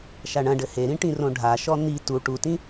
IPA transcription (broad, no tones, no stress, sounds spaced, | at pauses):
ʃ a ɳ ɐ̃ ɖ ɘ h e ɾ ĩ ʈ ĩ r õ ɖʱ a ʃ ɔ n̪ i t u ʈ u t ĩ